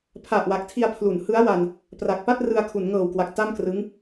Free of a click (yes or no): yes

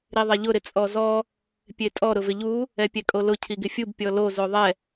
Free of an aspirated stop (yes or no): no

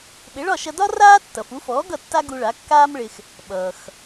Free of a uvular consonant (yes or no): yes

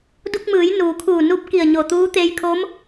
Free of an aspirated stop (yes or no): no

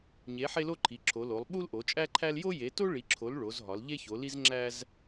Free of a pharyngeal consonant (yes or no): no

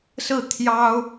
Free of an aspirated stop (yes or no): no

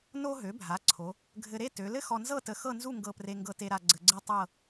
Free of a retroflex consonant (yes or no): yes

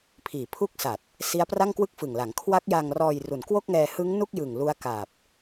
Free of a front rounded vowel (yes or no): yes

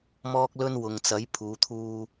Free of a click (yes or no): yes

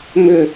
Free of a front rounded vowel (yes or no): no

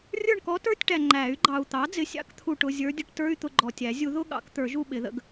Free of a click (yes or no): no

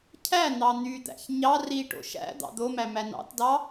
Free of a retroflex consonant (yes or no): no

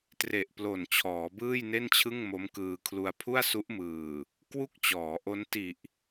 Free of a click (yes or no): yes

